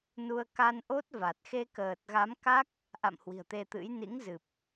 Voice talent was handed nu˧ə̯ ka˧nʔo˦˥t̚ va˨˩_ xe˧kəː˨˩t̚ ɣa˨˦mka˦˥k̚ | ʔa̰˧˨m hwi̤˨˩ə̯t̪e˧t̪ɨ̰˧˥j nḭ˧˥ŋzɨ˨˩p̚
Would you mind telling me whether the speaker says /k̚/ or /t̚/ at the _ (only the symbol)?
t̚